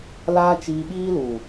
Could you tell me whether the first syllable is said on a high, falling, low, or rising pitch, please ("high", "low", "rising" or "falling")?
high